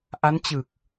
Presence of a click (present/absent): absent